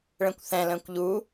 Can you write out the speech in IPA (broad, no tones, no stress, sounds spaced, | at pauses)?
ɭ ɛ̃ kʷ θ ɛ̃ l ə̃ː kʷ ʎ u